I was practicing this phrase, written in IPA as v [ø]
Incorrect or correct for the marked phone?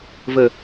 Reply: incorrect: ə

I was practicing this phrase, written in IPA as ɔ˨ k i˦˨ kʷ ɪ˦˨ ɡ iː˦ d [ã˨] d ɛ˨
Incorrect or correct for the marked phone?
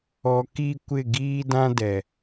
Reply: incorrect: ã˦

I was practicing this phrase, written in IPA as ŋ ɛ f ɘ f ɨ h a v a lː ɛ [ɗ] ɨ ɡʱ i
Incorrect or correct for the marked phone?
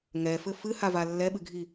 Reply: incorrect: ɓ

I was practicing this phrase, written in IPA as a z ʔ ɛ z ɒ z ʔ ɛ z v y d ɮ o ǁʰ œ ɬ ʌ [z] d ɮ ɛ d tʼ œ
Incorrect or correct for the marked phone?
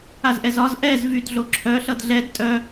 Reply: incorrect: none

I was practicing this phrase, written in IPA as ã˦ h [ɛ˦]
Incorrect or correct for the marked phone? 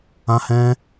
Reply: incorrect: ɛ̃˦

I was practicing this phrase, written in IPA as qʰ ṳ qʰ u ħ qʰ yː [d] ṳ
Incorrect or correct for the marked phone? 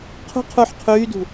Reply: correct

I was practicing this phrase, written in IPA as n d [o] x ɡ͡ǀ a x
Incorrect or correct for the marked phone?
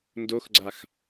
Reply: correct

